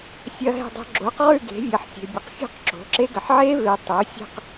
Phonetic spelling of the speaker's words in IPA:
sʲ ɐ˦˥ ɦ ɛ̤˥˧ dˤ o̤˦˥ ɡ͡ǁ o˩˥ q ʁ ʉ˥˧ ɡ e̤˩˥ vʲ ɐ˩˥ ħ sʲ e̤˨ bʲ ɐ˨ q fʲ o̤˥˧ q ǁ o̤˩˥ ǁ e˦˥ ɡ ɐ˨ ħ ʕ e˦˥ v e˨ tˤ o˩˥ sʲ ɛ̤˥˧ q

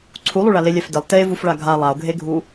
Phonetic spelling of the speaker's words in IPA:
ǀʰ u lˠ u ɭ a l e lʲ ɛ f d ɪ lˠ t e v u f ɭ a ɡʱ a lˠ a o̯ ɡʱ e ɡʱ u

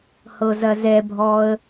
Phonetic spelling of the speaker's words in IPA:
h ɤ z ɐ z ɛ bʱ ɔ ə̯

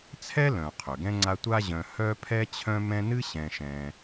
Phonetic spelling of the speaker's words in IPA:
t͡sʰ ɛ˥ l œ̃˩ qʰ ø˩ ɡ ɛ̃˥ ŋ͡ǀ a˦ tʷ a˦ ʑ œ̃˨ h œ˦ pʰ ɛ˦ t͡ɕʰ œ̃˦ m ɛ̃˦ n ɨ˥ ɕ ɛ̃˨ ʃ ɛ̃˨

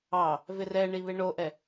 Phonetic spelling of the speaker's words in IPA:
ɑ | v ɪ r ɛ ɳ i β e ɳ o ʔ ɛ

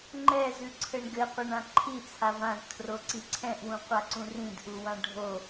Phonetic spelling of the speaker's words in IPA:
ŋ͡ǃ ɛ z ʉ ǀʰ ɘ ɳ ɡ ɘ qʷ ɛ ɳ ã ǃʰ i t͡sʰ a v ã z tʰ r o ǀ i ǀʰ ɛ̃ ʔ w ũ qʷ a ǀ ũ r ĩ d ʔ u w ã ɖʱ o

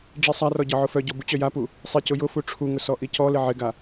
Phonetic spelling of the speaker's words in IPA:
ɖ͡ʐ i sˤ a r ɔ ɟ ɒ ʕ ʊ f œ ɟ ɔ b u t͡ɕ œ j a p u | sˤ i c ʊ j ʊ f u ʈ͡ʂʰ u ŋ ʊ s ɔ ʔ i c ɔ l ɪ ʕ ɪ ɡ a

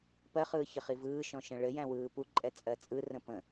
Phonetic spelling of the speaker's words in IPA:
p ɜ χ ɯː ç ə χ i v ɯː ʃ ɔ̃ ʃ ə̃ ɭ ɘ j æ̃ w ɯː p u ǃʼ ɛ t͡sʼ ɜ t͡sʼ ɯ r ə̃ p ə̃

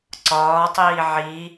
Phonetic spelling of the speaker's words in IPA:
ǀ ɒː tˤ iː ʕ i

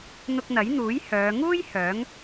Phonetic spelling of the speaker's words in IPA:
n̪ ʊ˧ k̚ n̪ ɐ˨˥ j n̪ uː˨˥ j h œː˨˧ ŋ uː˥ j h œː˨˥ ŋ

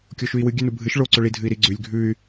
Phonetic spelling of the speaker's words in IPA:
kʲ o ʃ ʉ i̯ w ɨ ɡʲ ʉ n u bʱ ɨ ʃ ɭ o ǀ ɵ ɭ i dʱ ɨ i̯ ɾ i ɡ͡ǀ ʉ lʲ ɡʱ ʉ y̯

